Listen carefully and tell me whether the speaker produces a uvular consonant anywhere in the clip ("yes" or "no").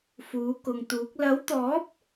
no